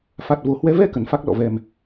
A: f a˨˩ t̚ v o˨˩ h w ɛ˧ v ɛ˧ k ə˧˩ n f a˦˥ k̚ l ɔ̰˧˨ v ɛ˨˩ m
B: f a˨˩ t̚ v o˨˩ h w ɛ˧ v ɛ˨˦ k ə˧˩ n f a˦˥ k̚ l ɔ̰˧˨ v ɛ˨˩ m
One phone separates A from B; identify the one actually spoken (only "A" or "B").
A